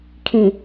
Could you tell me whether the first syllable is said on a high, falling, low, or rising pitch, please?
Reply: low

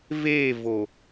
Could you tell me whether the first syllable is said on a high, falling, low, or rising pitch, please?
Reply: falling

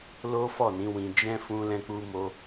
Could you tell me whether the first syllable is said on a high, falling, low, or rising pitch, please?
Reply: high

